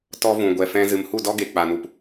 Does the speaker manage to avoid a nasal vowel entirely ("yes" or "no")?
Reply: no